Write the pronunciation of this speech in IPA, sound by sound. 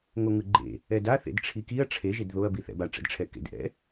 ŋ o ŋ ɯ ɡ͡ǃ ḛ | ɛ d a θ ḛ d ʈ͡ʂʰ i k i ɐ̯ ʈ͡ʂʰ e ʒ e d ð o ɐ̯ b i θ ɛ̰ b a ʈ͡ʂ ɛ̰ d ʈ͡ʂʰ ɛ k ḛ d ʔ ɛ̰

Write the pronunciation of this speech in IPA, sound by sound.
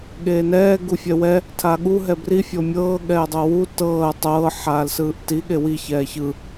ɠ eː n ɛː ɡ u fʲ ɛ w ɛ | tʰ aː ɠ u ɦ ɛ b r i fʲ ɤ mʲ ɤː ɠ ɛː dˤ ɤ w u t ɤː ɐ̯ tˤ ɤː ħ aː l s ɯː ʔ t i ɠ e w i ç ɛː ç ɯ

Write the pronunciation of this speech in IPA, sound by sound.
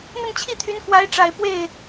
n̪ ə˥˧ n t͡ɕʰ i˥˩ t̪ʰ y˧˥ n k w a˧˥ ɪ̯ ʈ͡ʂ a˨˩ ɪ̯ p w e˥˩ ɪ̯

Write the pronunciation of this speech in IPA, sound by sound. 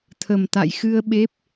t̪ʰ ə˨˩ m t̪ a̰˧˨ j x ɨ˧ ə̯ ɓ e˦˥ p̚

